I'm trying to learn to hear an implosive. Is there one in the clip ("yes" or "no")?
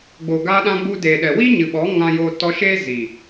yes